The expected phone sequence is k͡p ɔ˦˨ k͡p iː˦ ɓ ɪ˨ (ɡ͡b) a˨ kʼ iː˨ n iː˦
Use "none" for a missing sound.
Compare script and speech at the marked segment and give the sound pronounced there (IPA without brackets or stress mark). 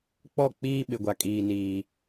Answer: ɡʷ